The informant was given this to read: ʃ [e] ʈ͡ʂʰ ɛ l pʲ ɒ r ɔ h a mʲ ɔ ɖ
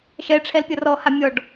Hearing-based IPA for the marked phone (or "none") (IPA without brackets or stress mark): ɛ